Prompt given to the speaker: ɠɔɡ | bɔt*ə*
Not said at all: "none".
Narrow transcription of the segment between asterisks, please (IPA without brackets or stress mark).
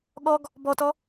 ɔ